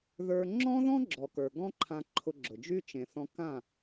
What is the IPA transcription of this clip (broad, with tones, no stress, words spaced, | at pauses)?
ðə˞˧ ŋ͡ǁɔ̃˦ðɔ̃˦ ɡ͡ǁɔ˨kə˞˨ɡɔ̃˦ǃʰã˧ ǃʰʊ˧ɡ͡ǁʊ˨d͡ʒy˦ t͡ʃẽ˨θɔ̃˧ kã˦˨